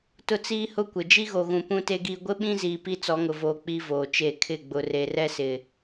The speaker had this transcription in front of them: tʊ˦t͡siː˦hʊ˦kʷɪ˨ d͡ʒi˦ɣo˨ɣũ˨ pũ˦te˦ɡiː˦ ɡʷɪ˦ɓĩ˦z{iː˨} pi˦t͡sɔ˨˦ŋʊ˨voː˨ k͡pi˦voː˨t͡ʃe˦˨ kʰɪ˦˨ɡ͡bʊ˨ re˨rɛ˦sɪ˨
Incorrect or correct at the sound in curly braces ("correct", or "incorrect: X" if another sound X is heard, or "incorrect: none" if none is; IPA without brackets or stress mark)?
correct